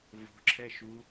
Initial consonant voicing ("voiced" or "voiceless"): voiced